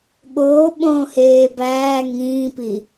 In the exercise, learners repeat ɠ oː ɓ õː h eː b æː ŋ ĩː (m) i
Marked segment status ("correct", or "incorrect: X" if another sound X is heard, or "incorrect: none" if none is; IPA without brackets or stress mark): incorrect: p